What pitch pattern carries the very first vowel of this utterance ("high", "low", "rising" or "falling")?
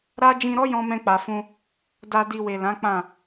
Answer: high